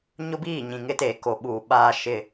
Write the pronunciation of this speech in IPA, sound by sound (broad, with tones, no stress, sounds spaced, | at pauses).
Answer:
ɲ ʊ˦ b iː˦˨ ɲ ĩ˨ ŋ ɪ˦ t eː˨ k o˨ ɓ uː˨ ɓ aː˦ ʃ ɪ˦